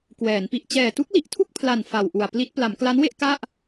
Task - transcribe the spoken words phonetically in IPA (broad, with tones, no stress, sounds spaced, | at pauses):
k w ɛː˩˦ n p i˨˩ ʔ t͡ɕ ɛː˨˩ t u˦˥ k̚ l i˨˩ ʔ tʰ u˥˩ k̚ pʰ l a˨˩ n f a˨˩ w ʔ u˨˩ a̯ p l i˦˥ t̚ p l a˩˦ m k l a˦˥ n w e˥˩ ʔ k a˥˩ ʔ